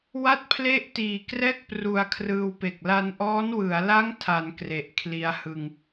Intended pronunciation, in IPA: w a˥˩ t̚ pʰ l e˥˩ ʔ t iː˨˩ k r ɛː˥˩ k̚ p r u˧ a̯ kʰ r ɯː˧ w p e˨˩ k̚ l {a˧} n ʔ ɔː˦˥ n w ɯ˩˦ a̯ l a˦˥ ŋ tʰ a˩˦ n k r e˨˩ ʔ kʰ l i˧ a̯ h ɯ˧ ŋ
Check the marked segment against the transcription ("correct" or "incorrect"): correct